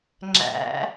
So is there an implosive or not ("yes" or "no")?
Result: no